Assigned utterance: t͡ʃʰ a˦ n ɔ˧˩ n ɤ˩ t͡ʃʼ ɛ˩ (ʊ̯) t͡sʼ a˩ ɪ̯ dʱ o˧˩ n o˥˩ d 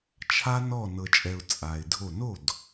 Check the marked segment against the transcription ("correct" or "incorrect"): correct